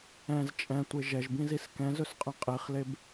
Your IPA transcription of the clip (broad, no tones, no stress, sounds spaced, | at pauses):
ɛ̃ z t͡ʃʼ ɛ̃ tʷ e ʒ ɛ ʒ b ĩ z i s k ɛ̃ z ɵ s qʼ ɛ̃ qʼ i χ l e b